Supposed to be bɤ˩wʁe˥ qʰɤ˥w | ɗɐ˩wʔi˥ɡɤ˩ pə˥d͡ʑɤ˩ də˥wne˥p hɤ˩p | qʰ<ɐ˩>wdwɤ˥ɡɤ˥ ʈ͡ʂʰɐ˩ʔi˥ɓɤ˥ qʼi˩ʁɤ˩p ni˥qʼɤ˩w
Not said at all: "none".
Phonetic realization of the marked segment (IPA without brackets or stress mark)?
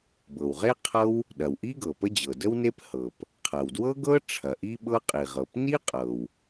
ɐ˩